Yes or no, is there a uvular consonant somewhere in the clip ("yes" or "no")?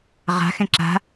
yes